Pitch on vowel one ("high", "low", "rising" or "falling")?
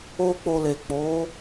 high